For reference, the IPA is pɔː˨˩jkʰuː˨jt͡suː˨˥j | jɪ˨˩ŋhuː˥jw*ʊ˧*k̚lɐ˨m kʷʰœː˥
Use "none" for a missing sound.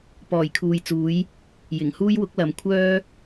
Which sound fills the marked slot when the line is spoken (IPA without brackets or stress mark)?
ʊ˨˥